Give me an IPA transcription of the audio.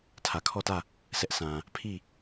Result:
tʰ ä˨ kʰ ɔ˦˨ t ä˦˨ | s ɛ˦ ʔ sʰ ã˨ | pʰ i˦˨

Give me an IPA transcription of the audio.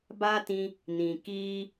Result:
b a˦ t ĩ˧ | n ĩ˨ k iː˦

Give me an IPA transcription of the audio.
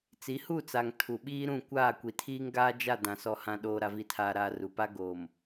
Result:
t͡s i˨˦ h u˦˨ t͡s a˨ ŋ tʰ u˨ ɓ iː˦ ɾ ũ˦˨ kʷ aː˦˨ kʷ i˨ tʰ iː˦ ŋ ɡ aː˦ d͡ʒ a˦˨ d ã˨ s ɔ˨ h ã˨ ɗ oː˨ ɾ a˨ v i˨ tʰ aː˨ ɾ aː˨ r u˨ p a˦ ɡ oː˨ m

